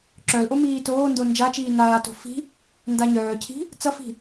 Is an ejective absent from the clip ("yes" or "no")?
yes